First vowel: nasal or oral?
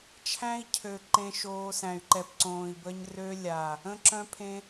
nasal